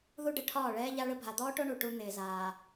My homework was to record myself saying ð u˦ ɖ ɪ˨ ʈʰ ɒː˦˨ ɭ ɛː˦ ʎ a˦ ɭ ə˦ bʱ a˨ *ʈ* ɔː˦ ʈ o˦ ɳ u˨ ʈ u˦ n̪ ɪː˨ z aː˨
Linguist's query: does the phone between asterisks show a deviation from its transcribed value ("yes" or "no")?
yes